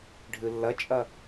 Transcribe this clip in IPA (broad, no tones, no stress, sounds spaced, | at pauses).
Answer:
ɖʱ ɯ lː ʌ t͡ʃʼ ʌ